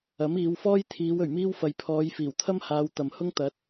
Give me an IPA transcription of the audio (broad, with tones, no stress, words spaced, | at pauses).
ɐ˨˥miː˨˧wfɔː˥jt̪ʰiː˨˧w ɵ˨˩ɥmiː˥wfɐ˨j pʰɔː˨˧j fiː˨˩wt̪ʰɐ˥mhaː˨˧w t̪ɐ˨mhʊ˥ŋ t̪ɐ˨˥t̚